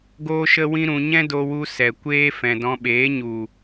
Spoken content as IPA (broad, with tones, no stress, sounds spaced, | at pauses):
ɡ oː˦ ʃ ə˦ w ĩ˦ ɾ ũ˧ ɲ ɛ̃˦ d o˧ w u˧ s ɛ˨ kʷ eː˦ f ɛ̃˨ d ɔ̃˧ ɓ eː˨˦ ɲ u˨